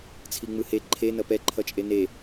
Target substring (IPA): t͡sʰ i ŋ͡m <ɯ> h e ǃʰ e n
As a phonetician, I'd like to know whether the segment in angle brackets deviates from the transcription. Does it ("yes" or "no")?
no